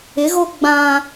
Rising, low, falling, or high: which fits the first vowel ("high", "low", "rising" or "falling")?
rising